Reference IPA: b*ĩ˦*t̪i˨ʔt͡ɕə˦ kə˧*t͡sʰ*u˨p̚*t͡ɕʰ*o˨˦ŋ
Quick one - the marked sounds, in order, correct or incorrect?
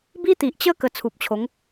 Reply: incorrect: i˦, correct, correct

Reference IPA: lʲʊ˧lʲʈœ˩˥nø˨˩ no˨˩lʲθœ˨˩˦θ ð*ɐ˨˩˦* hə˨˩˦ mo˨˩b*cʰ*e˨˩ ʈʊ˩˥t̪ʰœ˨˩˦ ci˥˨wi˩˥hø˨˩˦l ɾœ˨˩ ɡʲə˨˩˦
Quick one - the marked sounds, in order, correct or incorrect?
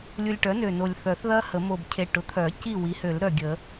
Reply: incorrect: ɐ˦˥, correct

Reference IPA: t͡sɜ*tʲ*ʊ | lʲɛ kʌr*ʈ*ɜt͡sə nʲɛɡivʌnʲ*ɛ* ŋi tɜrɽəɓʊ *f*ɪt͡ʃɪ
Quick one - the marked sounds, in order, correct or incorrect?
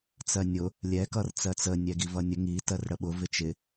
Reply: incorrect: nʲ, incorrect: t͡s, incorrect: ə, incorrect: v

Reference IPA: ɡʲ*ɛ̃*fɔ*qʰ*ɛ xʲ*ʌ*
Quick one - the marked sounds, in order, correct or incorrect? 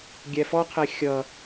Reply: incorrect: ɛ, correct, correct

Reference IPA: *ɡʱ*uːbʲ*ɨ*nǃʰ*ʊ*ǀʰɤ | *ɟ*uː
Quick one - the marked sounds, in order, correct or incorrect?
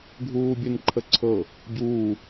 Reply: correct, correct, incorrect: ə, correct

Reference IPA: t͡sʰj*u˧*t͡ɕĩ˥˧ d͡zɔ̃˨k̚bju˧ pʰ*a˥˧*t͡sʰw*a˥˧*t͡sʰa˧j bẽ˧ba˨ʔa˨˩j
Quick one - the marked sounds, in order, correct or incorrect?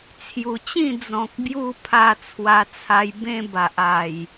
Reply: incorrect: u˨˩, incorrect: a˧, incorrect: a˧

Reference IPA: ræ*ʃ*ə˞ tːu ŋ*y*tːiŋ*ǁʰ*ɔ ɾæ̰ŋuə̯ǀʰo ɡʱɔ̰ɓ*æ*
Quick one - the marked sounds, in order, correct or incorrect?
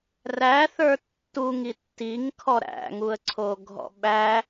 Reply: incorrect: θ, incorrect: i, incorrect: kʰ, correct

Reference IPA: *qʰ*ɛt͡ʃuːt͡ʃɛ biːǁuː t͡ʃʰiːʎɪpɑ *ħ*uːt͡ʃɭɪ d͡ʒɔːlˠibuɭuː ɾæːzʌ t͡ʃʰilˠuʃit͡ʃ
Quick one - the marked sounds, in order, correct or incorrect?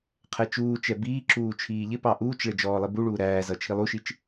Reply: correct, incorrect: ʔ

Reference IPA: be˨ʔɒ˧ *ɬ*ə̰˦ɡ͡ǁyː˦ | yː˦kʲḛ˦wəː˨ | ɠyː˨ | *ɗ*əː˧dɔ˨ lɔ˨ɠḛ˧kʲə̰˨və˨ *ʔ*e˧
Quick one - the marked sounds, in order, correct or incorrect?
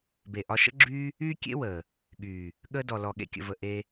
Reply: incorrect: ʃ, incorrect: ɠ, correct

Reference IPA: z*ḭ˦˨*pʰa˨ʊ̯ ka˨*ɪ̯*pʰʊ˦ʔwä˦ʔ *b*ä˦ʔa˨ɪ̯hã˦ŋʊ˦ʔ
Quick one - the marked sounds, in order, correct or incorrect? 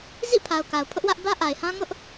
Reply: correct, incorrect: ʊ̯, correct

